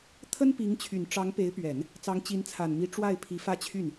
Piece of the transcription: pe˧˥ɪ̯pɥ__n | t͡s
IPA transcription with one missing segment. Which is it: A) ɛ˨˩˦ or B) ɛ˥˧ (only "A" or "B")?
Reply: A